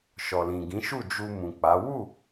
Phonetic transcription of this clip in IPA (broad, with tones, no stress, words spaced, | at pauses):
ʃɔ˨lĩ˨ɡĩ˨˦ʃu˦˨ d͡ʒu˧mũ˨k͡pa˨˦ wu˦˨